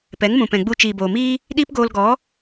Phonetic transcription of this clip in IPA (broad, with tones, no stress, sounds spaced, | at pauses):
p ɛ˨˦ ŋ m ũ˨ p ɛ̃˨ ɡ͡b u˧ t͡ʃ iː˨ b oː˨ m iː˦ | ɗ iː˦ p ɡ oː˧ l ɡ ɔ˨˦